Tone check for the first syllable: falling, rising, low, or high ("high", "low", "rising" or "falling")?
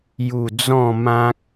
falling